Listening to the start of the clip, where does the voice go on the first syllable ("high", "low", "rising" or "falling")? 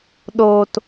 low